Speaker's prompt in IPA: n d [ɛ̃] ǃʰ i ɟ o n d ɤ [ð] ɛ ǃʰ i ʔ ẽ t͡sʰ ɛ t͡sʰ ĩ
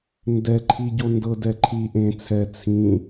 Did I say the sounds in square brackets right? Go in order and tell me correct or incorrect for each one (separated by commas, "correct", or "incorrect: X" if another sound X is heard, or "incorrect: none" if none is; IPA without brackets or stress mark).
incorrect: ɛ, incorrect: d